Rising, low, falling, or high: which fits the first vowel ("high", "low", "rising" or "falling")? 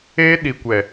high